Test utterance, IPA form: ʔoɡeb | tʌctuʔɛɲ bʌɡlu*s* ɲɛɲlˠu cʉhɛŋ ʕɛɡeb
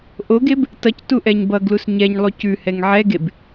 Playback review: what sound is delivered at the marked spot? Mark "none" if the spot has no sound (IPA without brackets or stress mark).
s